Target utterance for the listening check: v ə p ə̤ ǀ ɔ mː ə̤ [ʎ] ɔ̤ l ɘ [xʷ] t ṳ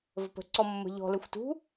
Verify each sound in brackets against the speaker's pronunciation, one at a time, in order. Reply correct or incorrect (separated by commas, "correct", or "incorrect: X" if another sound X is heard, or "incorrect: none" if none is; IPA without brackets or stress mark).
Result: correct, correct